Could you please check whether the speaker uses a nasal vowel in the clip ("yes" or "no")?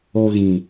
yes